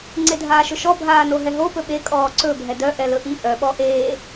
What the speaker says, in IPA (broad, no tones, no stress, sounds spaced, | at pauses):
ŋ͡ǀ e dʱ aː ʃ ɵ ʃ ɔ bʱ aː n o ɦ ɛ ɦ o p ɵ ɓ e kʼ ɔː ǀ ɵ bʱ ɛ d œ ʔ ɛ l ɵ ʔ i ʔ œ ɓ ɔ ʔ eː